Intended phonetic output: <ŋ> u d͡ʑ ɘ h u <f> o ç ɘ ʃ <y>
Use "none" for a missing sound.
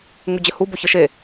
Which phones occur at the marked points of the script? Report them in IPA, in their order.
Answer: ŋ, b, e

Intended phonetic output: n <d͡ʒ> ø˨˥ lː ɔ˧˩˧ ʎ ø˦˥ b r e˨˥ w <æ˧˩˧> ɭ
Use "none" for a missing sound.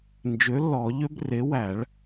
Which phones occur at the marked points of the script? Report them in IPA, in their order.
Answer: d͡ʒ, æ˧˩˧

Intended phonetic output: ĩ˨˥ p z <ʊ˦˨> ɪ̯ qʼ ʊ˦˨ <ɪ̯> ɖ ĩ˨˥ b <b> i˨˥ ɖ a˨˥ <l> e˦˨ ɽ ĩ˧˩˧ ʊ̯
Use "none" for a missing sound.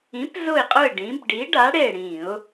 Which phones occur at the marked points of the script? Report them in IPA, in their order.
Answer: ʊ˦˨, ɪ̯, ɖ, ɽ

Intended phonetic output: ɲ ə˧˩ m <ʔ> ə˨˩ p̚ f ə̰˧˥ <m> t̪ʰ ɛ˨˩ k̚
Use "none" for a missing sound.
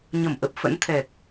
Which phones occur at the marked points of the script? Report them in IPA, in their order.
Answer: ʔ, n

